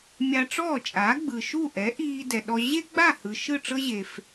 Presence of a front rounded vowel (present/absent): absent